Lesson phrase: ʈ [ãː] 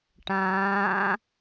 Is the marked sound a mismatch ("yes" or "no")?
no